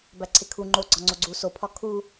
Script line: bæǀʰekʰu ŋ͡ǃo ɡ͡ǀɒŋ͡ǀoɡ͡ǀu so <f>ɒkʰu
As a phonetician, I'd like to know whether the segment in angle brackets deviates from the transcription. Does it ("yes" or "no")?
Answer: yes